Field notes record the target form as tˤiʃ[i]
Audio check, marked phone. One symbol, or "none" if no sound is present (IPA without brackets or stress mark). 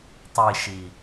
i